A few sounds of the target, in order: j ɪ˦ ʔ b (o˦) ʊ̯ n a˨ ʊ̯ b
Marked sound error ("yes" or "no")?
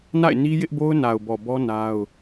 no